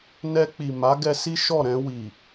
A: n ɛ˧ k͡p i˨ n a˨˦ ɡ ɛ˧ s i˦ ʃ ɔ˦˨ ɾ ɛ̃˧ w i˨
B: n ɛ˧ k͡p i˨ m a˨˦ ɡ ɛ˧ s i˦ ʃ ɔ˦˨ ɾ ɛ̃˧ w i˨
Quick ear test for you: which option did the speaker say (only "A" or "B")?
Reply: B